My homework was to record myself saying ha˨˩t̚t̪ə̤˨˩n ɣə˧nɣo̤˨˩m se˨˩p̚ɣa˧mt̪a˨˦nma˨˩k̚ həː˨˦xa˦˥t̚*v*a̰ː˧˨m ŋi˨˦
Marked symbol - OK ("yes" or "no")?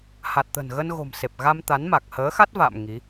yes